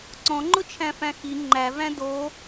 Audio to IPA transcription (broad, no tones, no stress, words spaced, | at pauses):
ǀɔ̃ŋ͡ǃʊt͡ʃʰæ̃fæ̃ xi ŋ͡ǃævæ̃ do